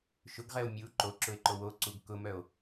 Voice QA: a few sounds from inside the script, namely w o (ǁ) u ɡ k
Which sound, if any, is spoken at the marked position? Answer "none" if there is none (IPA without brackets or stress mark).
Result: ǀ